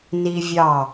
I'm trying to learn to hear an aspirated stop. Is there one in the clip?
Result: no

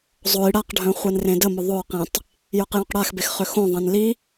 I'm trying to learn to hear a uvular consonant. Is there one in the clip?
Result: yes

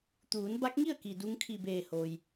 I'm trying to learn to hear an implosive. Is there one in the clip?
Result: no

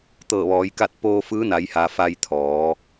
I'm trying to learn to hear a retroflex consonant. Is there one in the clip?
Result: no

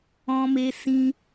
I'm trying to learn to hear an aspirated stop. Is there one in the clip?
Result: no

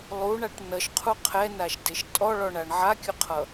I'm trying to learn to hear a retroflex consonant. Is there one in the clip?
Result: yes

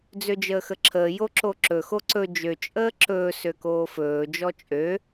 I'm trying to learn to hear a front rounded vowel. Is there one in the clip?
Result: yes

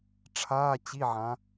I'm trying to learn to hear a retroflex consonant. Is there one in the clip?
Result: yes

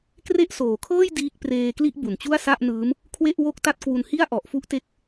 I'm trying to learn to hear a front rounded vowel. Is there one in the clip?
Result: no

